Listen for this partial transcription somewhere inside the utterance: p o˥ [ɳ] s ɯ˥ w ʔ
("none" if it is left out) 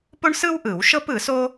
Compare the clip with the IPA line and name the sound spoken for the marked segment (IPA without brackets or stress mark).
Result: ɳ